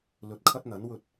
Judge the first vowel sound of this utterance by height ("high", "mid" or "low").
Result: mid